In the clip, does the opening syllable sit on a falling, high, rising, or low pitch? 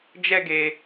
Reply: high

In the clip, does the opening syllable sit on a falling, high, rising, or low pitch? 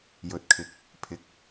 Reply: low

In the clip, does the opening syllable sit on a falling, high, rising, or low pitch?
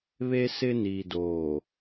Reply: high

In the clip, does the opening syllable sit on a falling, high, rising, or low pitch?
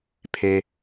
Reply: low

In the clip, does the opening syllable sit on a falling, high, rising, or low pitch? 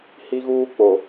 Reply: high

